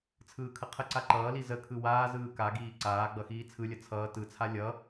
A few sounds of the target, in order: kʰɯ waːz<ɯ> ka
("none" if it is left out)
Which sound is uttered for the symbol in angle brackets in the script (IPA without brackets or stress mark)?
ɯː